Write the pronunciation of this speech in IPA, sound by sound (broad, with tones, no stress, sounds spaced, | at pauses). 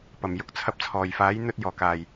p ɐ˨˩ m j ʊ˨ k̚ t͡sʰ ɐ˧ p̚ t͡sʰ ɔː˨˩ j f aː˨˥ j n̪ ɵ˥ t̚ j ɔː˨˩ k aː˨˩ j